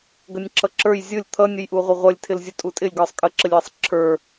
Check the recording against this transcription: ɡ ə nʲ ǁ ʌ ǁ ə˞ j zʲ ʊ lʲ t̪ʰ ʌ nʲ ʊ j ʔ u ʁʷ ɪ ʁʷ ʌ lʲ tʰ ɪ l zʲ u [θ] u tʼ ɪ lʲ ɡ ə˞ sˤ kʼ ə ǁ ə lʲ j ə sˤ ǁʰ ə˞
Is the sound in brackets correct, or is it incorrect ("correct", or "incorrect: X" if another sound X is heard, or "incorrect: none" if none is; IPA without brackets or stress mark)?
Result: incorrect: tʼ